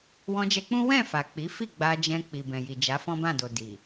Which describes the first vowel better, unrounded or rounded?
rounded